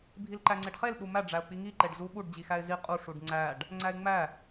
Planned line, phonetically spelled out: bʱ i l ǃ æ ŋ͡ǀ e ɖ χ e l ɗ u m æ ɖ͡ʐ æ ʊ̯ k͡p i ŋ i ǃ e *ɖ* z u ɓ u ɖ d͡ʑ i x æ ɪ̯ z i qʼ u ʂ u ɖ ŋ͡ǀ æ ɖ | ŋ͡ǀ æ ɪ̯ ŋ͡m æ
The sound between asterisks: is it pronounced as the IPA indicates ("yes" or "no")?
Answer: yes